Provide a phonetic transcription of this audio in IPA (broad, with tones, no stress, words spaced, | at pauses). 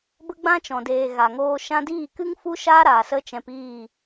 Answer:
bə˦ɡ͡bã˦t͡ʃɔ̃˨deː˨ ɣa˨ŋoː˧ ʃã˧diː˦˨kɨ˦ŋ fu˦ʃaː˦ɾaː˨ sə˦t͡ʃɛ̃˧piː˦˨